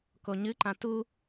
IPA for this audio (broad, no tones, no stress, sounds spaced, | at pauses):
k o ɲ ɨ ǃ ã t u